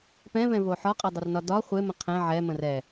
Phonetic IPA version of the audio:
pɛ̃vɛ̃vo ħɒqʼɛdˤərnɒ dɒ χʷemə̃ qʰɛ̃ ʕɛmə̃r ɛ

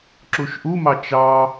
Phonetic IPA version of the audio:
ǁuʃʔumɑ t͡ʃɑ

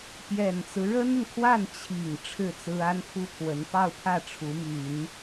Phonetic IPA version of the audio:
pjɛ˨˩nt͡sɹ̩˦ ɻə˥nə˨nkʰwa˥˩n t͡ɕʰi˨˩ŋ ʈ͡ʂʰɻ̩˥˩t͡sɹ̩˥ a˥npʰu˥pʰwə˧˥n pɑ˥˧ʊ̯pʰä˥˩ ʈ͡ʂʰu˧˥my˨˩˦n

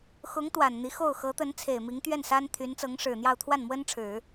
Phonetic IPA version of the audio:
xʊ˧˥ŋ t̪wa˨˩nn̪i˧˥xo˥˩ʊ̯ xɤ˧˥t̪ə˧˥n t͡sʰe˨˩ɪ̯mi˧˥ŋt̪ɥɛ˥˩n sa˥n t̪ʰy˧˥nt͡sɤ˧˥ŋʂɻ̩˨˩n̪jɑ˥˧ʊ̯ t̪ʰwa˥˩nmwə˥n ʈ͡ʂʰɻ̩˨˩˦

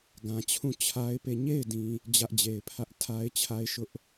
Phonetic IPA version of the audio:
ɡã˨t͡ɕʰũ˦˨ t͡ɕʰa˦ɪ̯pe˦˨ ɲe˦˨ɪ̯dĩ˨ | d͡ʑä˦ʔd͡ʑe˨ɪ̯pʰä˦ʔ tʰa˦ɪ̯t͡ɕʰa˦ɪ̯ ʃʊ˦ʔ

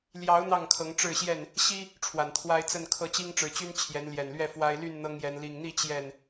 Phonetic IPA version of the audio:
ljɑ˨˦ʊ̯ n̪ɑ˥˨ŋkʰɤ˨˦ŋ ʈ͡ʂɻ̩˥˨ɕjɛ˥˨n | ɕi˦ | ʈ͡ʂʰwa˨˩nt̪ʰwa˦ɪ̯t͡sə˥˨nkʰɤ˥˨ t͡ɕi˦ŋʈ͡ʂɻ̩˨˩t͡ɕy˦n t͡ɕʰjɛ˨˦nljɛ˨˩nlɥɛ˥˨ fwa˦ɪ̯ ly˥˨nn̪ɤ˦ŋjɛ˨˦n li˨˩ŋn̪i˥˨ t͡ɕjɛ˥˨n

